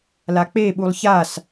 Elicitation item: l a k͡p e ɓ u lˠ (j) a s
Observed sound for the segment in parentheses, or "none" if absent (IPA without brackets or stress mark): ç